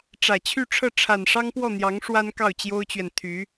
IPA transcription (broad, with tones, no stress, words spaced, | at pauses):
ʈ͡ʂä˨˩t͡ɕʰy˥˧ʈ͡ʂʰɤ˥˩ ʈ͡ʂʰa˨˩nʂɑ˥ŋpwɔ˥˩n̪jɑ˧˥ŋ ʂwa˥n kɑ˥˩ʊ̯t͡ɕjo˥ʊ̯t͡ɕɥɛ˨n t̪ʰy˧˥